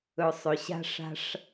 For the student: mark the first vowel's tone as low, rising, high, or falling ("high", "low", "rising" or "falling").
low